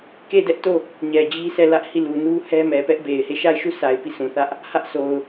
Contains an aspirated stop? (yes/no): no